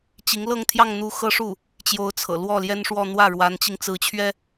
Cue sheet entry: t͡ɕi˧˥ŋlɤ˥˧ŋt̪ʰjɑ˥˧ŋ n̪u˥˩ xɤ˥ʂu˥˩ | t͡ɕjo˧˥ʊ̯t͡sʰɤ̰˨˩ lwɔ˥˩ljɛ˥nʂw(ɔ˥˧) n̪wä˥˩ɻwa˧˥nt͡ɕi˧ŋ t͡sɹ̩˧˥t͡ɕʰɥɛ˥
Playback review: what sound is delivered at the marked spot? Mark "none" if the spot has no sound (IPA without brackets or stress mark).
ɔ˥˧